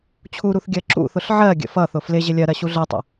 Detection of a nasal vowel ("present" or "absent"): absent